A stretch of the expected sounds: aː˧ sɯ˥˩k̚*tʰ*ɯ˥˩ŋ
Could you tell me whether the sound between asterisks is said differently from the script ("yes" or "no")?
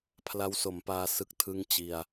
no